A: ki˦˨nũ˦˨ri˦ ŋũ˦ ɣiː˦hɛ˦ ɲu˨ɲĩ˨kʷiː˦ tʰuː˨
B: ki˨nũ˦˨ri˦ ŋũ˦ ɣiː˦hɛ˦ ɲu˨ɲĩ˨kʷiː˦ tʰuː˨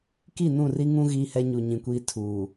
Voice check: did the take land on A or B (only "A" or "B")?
A